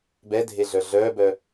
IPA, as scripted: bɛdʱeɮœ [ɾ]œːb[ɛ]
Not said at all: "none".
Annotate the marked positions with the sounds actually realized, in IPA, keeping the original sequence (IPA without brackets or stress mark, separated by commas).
ɮ, œ